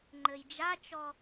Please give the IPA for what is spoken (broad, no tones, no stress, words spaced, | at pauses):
ŋ͡ǃɘjd͡ʒat͡ʃɔ